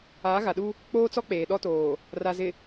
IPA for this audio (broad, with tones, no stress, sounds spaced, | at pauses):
aː˨˦ ɣ a˨ ɗ u˦ | k͡p oː˦ t͡s ɔ˦ k͡p eː˨ ɗ ɔ˦ t oː˨ | r a˨ z ɪ˨